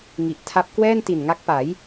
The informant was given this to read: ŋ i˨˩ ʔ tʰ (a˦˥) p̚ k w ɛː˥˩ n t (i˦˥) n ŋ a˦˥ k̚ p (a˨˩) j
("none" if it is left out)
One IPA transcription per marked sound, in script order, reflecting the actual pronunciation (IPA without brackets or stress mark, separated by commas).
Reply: a˦˥, i˨˩, a˩˦